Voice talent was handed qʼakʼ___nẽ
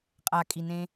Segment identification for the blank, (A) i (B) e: A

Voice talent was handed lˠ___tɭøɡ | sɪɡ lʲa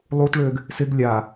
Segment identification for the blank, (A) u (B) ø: A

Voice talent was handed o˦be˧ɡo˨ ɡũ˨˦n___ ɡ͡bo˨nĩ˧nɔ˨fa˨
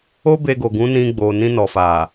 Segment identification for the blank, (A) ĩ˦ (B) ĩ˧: B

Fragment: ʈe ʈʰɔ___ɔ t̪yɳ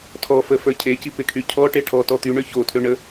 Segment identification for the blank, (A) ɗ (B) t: B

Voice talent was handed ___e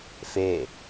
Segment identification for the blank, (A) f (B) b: A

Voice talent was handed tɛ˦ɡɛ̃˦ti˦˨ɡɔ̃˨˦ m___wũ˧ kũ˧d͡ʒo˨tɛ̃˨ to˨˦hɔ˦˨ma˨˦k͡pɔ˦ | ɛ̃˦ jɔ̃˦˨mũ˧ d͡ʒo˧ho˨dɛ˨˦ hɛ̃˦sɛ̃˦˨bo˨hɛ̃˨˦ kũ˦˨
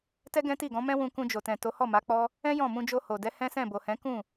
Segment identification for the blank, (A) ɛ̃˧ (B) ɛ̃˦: B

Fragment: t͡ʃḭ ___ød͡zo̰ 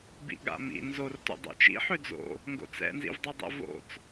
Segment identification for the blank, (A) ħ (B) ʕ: A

